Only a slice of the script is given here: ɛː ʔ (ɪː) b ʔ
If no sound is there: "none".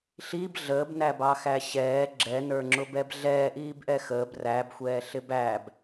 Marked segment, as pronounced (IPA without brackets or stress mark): iː